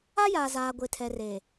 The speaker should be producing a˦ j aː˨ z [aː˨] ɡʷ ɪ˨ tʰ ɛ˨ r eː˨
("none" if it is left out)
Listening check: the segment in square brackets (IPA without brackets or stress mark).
aː˨